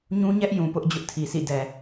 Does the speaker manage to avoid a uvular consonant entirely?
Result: yes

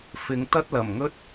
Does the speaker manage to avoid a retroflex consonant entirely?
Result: yes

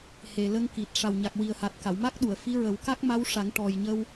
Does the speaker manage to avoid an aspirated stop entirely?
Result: yes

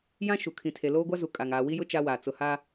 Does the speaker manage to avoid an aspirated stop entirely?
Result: no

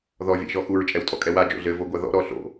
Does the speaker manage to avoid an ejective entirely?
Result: no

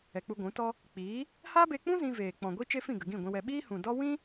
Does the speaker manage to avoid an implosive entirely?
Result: no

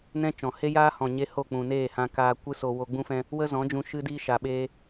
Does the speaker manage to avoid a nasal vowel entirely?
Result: no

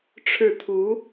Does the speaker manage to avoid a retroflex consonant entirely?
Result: no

